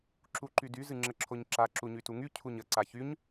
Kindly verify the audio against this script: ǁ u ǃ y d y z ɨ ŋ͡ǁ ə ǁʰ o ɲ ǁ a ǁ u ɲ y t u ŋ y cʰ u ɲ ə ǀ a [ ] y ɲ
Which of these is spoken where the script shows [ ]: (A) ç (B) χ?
A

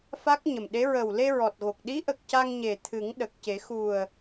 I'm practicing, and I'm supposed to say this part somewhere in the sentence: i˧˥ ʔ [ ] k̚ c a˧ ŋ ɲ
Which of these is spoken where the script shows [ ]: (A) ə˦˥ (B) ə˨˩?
B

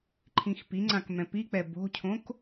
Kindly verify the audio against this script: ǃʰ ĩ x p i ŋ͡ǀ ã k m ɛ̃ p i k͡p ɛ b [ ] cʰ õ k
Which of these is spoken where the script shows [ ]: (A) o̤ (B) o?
A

